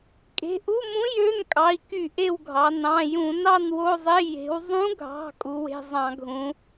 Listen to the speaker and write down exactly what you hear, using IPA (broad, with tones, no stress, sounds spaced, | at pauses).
kʼ e̤˩˧˩ ʔ u˧˥˧ m ũ˧˥ j ø˧˥˧ n kʼ ɑ˩˧˩ i̯ k y˧˩˧ ʔ e˦˨ w ɡʱ ɑ˩˧ n ɑ̃˩˧˩ j ũ˧˩˧ n ɑ˦˨ n w o˧˥˧ zˤ e˧˥˧ j e̤˩˧ w zˤ ũ˧˥ ɡʱ ɑ̤˩˧˩ kʼ u˩˧ w e̤˩˧˩ zˤ ɑ̃˧˩˧ ɡʱ ũ˩˧